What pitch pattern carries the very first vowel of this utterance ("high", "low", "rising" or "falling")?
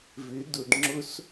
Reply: rising